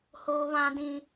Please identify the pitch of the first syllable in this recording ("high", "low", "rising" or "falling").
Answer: high